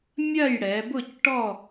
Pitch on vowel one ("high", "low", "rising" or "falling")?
falling